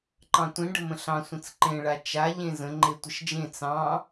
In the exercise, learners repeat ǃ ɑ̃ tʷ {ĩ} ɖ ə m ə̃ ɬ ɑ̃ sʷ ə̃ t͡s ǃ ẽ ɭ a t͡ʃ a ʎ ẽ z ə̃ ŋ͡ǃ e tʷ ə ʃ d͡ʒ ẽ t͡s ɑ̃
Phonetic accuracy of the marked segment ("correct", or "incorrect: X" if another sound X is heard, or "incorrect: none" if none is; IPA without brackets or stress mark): correct